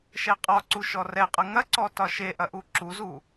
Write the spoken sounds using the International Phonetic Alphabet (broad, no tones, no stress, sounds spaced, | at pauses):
ʃ ɛ qʼ ɒ ǀ u ʃ ɔ r ɛ qʼ ɐ ŋ ɐ ǀ ɔ t ɒ ʃ e ʔ ɐ ʔ u ǁ u z u